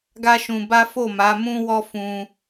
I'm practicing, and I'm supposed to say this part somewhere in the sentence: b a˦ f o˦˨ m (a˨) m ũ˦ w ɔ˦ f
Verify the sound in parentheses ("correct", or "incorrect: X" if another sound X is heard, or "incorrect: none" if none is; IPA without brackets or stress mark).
incorrect: a˨˦